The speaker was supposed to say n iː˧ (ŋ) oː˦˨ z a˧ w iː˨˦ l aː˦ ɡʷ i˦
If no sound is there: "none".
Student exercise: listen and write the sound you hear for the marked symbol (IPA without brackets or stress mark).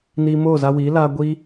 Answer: m